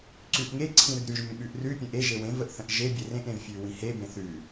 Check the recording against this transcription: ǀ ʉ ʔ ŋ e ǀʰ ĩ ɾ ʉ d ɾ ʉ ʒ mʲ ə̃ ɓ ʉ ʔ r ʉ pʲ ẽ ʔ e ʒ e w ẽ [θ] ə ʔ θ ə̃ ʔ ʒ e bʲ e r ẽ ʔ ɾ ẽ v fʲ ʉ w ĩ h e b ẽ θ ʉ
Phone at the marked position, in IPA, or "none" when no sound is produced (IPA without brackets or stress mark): v